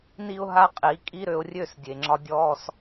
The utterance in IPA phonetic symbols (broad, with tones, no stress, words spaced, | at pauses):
ni˦ʊ̯ɦa˦qʼi˨˦ kʼi˦ɾø˧ʊ̯ rʲø˦˨sdʲe˨ŋ͡ǁɒ˧ dʲɔ˦s